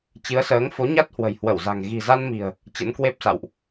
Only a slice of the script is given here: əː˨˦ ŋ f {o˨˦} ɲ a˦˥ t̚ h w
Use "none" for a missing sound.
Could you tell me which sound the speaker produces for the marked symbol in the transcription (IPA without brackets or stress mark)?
o˨˦